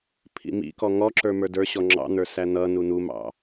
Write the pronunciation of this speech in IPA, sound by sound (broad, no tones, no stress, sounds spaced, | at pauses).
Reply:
pʰ ḭ m ḭ k ɔ ŋ ɔ ǁ ə˞ m ə˞ d ə˞ ɕ ɔ ŋ͡ǁ ɑ̰ n̪ ə˞ s æ n̪ ʌ n u n̪ u m ɑ̰